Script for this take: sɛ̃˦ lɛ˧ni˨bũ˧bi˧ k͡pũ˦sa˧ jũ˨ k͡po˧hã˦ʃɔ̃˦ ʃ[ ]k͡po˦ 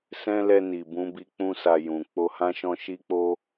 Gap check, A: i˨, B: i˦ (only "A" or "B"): B